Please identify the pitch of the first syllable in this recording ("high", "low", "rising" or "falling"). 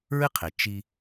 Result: high